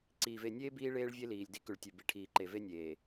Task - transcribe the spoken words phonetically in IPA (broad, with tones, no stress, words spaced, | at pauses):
ǀiː˨ve˦˨ nʲeː˦ biː˦ ɭeː˦ɭvʲe˦liː˨lʲ di˦kʉ˨ɭtʲʉ˨ bi˨ʈʰiː˨ǃe˨ve˦ nʲeː˨